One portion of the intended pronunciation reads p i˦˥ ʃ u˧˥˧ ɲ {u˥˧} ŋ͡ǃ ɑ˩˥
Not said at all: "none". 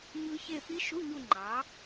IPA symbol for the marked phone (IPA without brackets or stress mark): u˥˧